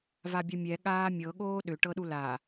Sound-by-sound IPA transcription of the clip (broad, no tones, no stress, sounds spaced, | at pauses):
v a bʲ a mʲ ɛ ɠ aː mʲ ɤ ɠ oː ɗ ʏ ʈ ɤ ɗ u l a